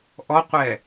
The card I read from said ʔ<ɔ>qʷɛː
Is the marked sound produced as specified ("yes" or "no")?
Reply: yes